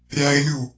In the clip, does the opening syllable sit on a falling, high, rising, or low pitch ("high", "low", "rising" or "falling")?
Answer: high